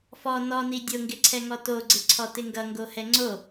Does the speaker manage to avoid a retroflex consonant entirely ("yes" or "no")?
yes